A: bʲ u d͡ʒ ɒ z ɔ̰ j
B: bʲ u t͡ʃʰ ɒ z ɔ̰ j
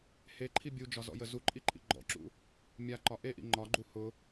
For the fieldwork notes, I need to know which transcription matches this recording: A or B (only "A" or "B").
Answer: A